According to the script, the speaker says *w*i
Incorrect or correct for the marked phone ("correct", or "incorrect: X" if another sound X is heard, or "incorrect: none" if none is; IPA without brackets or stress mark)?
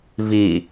incorrect: v